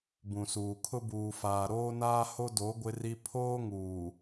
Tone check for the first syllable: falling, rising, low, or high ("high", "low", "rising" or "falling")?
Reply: low